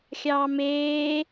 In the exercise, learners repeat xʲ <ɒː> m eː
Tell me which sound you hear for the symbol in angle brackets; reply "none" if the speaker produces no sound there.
ɑː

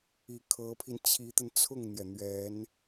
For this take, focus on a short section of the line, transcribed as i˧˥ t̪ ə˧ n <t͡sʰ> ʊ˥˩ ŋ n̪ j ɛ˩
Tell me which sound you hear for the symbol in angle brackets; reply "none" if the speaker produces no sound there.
t͡sʰ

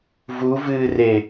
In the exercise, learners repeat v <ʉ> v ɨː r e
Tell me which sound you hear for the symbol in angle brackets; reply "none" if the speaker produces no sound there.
u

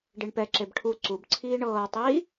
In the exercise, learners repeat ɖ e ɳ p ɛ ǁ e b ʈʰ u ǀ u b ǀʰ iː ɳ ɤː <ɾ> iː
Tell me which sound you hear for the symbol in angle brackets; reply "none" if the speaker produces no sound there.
tˤ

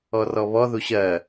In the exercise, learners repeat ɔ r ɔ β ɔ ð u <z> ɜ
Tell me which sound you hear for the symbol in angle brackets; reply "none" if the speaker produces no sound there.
ɕ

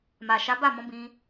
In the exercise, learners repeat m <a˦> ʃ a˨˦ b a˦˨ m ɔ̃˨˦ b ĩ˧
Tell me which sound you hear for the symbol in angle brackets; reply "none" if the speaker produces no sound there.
a˨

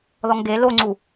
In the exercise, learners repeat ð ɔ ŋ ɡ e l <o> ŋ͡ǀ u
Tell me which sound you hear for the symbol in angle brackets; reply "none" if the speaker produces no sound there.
o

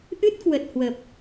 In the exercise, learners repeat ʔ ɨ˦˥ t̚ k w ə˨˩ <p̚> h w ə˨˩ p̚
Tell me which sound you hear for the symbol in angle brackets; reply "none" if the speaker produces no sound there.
t̚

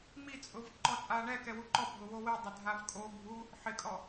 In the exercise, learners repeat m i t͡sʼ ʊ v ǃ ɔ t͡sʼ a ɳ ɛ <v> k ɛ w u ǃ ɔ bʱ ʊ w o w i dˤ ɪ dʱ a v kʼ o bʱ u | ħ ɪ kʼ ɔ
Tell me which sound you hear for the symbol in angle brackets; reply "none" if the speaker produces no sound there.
none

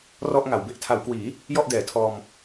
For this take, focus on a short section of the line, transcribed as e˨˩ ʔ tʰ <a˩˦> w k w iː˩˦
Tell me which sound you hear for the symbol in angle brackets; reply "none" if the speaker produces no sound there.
a˩˦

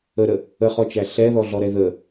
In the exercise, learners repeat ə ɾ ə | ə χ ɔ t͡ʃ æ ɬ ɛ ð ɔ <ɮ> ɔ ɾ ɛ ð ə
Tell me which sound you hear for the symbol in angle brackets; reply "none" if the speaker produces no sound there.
ɮ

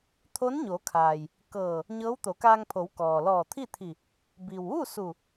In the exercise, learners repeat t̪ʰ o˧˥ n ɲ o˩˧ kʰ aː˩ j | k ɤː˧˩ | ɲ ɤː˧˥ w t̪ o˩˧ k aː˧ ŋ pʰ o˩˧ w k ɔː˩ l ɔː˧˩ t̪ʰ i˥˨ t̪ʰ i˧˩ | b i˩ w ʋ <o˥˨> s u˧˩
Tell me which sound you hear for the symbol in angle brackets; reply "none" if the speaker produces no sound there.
u˥˨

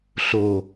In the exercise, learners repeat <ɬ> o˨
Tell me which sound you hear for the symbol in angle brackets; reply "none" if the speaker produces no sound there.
ɬ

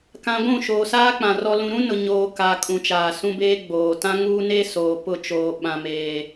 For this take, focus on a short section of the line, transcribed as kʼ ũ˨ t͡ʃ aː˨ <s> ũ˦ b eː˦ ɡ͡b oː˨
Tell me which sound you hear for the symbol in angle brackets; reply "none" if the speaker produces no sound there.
s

